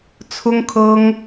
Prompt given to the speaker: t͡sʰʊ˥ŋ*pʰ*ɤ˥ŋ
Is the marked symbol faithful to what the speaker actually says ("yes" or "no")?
no